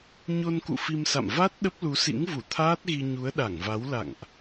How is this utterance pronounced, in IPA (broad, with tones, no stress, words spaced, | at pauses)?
ɲo˧nkṵ˧˨ fi˧msa̰˧˨m va˦˥t̚ ɗə˦˥p̚lu˨˦sḭ˧˥ŋvu˧˩ t̪ʰaː˦˥t̚ɣi˧ ɲu˨˦ə̯ɗa˧˩ŋva˨˦w la̰˧˨ŋʔ